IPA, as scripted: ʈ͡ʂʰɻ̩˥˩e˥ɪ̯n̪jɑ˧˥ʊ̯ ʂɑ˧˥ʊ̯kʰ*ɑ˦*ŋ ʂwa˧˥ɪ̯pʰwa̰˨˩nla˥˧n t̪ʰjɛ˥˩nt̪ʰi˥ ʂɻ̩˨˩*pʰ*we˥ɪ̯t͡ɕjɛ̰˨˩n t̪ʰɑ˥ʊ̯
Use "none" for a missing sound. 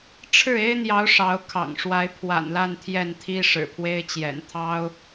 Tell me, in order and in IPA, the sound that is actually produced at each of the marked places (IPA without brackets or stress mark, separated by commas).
ɑ̰˨˩, pʰ